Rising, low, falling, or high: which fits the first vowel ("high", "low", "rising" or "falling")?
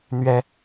high